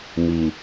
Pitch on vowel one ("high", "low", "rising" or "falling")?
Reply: low